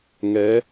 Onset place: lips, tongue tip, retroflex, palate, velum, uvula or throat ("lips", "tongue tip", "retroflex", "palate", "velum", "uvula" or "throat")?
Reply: velum